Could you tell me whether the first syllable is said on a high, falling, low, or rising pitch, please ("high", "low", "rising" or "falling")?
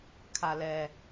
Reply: low